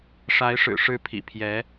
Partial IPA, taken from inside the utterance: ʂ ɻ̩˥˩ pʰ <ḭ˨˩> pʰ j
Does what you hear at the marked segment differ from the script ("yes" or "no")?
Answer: no